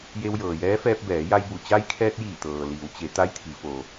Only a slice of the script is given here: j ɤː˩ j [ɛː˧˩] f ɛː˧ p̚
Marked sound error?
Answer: yes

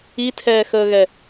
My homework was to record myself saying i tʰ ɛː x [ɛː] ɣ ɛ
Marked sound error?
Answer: yes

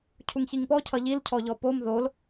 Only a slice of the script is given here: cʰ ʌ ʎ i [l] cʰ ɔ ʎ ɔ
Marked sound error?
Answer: no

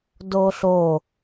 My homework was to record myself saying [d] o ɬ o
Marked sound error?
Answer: no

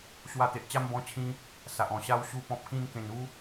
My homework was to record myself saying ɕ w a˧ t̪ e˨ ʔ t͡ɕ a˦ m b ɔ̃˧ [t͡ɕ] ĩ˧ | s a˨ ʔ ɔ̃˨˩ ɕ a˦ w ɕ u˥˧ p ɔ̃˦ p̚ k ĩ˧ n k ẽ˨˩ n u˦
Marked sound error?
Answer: yes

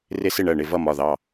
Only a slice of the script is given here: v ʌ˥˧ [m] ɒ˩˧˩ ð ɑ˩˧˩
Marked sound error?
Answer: no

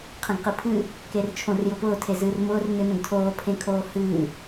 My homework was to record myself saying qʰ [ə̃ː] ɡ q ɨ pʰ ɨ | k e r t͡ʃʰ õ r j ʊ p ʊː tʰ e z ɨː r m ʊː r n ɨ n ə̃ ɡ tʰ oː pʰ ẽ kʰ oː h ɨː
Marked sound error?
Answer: yes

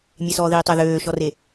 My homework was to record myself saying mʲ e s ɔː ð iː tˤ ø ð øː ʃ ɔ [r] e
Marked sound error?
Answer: no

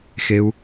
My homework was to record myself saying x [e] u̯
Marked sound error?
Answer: no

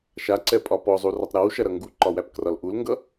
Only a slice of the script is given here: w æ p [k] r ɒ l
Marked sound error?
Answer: no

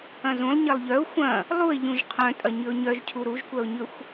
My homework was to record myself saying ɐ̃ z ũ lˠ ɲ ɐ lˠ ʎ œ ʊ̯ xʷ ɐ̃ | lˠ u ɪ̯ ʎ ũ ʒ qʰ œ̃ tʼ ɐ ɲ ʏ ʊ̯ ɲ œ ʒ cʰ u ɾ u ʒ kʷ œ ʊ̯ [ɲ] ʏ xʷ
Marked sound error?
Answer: no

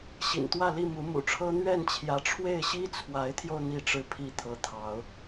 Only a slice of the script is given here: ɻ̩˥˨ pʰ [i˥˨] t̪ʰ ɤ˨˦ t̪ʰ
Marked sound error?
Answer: no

